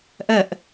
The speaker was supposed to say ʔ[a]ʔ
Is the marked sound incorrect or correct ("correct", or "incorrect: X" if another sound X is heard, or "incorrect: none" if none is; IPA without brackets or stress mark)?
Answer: incorrect: ɐ